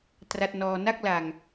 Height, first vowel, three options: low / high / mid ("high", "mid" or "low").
low